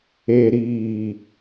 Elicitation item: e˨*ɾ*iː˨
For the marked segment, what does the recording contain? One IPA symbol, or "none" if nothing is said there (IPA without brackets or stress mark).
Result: ɾ